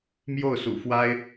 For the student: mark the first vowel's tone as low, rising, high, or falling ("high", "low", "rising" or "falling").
falling